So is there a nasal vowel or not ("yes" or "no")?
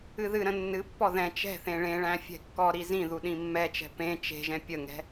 yes